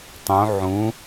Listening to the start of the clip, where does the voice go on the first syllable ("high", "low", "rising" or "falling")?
rising